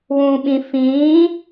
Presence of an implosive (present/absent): present